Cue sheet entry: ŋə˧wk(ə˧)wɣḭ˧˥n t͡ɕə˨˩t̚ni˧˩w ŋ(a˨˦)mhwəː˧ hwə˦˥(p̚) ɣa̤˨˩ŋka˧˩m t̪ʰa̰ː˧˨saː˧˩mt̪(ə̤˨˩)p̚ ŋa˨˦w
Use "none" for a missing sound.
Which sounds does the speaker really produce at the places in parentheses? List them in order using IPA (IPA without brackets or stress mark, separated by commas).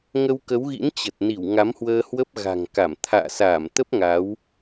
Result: ə˨˦, a˨˦, p̚, ə˦˥